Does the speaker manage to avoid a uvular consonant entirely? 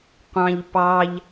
no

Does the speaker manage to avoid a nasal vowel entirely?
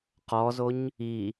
yes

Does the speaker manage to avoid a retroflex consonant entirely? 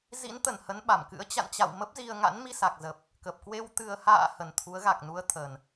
yes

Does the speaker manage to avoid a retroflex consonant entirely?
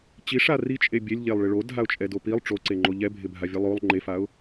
no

